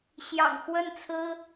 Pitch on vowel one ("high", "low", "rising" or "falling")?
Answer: low